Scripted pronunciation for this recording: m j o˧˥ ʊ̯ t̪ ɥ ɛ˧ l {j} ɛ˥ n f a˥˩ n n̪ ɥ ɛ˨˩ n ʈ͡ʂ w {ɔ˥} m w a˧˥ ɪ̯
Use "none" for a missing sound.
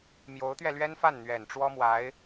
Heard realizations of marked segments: ɥ, ɔ˥

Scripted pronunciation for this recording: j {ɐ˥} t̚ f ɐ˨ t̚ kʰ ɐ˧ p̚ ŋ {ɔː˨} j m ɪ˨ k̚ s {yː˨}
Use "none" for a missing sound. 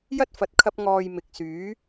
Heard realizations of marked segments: ɐ˥, ɔː˨, yː˨˥

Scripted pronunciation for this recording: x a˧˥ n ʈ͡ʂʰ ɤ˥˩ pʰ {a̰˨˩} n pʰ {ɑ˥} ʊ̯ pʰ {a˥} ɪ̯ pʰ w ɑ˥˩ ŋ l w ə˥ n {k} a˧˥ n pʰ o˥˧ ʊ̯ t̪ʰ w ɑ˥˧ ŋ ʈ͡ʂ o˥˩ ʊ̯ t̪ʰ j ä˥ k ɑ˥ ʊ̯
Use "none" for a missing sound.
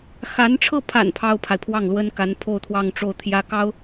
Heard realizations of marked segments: a̰˨˩, ɑ˥, a˨, k

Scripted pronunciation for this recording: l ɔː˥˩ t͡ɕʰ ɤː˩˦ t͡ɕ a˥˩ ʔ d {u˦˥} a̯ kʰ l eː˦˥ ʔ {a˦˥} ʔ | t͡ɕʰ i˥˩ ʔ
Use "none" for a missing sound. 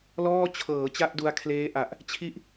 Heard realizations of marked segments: u˧, a˨˩

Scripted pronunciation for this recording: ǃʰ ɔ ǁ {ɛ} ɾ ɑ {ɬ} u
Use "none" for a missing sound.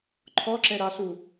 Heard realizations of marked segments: ɛ, ɬ

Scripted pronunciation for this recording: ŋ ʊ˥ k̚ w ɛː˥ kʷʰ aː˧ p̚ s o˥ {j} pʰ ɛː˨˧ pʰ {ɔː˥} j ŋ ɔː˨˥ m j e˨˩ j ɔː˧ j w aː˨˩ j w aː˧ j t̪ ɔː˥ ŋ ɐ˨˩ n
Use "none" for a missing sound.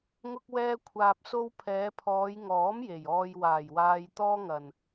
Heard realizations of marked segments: w, ɔː˨˧

